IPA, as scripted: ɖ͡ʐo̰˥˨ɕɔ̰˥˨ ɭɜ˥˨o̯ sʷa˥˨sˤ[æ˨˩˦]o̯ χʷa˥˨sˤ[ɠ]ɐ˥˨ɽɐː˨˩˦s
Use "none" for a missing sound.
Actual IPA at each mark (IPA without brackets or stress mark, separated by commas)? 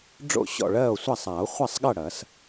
a˨˩˦, ɠ